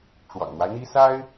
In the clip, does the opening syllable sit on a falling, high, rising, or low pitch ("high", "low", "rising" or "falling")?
low